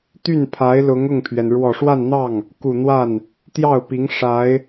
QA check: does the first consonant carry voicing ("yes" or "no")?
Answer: no